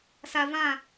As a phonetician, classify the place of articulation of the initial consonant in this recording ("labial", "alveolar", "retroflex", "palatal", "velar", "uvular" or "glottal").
alveolar